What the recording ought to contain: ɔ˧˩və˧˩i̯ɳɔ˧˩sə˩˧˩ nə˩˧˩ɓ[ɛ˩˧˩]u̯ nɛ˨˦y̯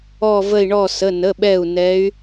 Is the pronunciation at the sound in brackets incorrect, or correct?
incorrect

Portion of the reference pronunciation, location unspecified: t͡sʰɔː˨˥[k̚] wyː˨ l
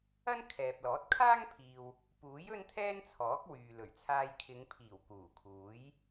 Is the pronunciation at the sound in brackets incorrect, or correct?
correct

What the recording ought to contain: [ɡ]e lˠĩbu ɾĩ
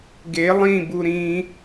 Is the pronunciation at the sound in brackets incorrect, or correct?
correct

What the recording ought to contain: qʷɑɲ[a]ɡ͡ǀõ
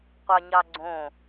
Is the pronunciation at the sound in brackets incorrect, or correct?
incorrect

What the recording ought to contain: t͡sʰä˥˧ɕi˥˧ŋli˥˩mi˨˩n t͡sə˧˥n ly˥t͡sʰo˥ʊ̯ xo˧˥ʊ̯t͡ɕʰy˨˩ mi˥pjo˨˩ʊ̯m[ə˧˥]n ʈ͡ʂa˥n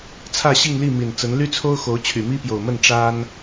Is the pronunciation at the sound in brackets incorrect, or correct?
incorrect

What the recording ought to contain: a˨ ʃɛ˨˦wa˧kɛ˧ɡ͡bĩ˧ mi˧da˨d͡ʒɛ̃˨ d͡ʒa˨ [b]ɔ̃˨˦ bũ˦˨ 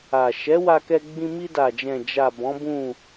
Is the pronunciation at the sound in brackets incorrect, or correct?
correct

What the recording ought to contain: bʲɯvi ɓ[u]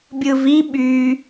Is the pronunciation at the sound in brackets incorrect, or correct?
incorrect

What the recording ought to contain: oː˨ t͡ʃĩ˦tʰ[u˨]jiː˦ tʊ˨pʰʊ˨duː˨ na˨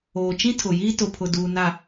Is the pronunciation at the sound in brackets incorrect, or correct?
incorrect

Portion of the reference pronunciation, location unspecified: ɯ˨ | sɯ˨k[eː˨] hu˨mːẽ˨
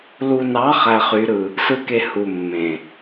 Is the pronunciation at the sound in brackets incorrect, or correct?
incorrect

